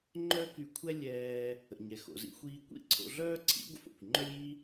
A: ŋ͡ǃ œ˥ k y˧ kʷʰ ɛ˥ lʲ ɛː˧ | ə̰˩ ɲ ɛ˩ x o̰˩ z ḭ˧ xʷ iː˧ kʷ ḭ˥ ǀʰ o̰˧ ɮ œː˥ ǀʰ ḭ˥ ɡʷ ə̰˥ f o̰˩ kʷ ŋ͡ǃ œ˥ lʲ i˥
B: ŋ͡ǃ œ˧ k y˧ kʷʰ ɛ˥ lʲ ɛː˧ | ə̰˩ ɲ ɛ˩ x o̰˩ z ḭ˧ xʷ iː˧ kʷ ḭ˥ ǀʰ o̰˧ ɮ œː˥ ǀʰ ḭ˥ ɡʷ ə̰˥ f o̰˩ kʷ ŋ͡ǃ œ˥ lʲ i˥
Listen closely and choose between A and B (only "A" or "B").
A